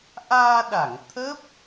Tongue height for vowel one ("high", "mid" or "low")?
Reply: low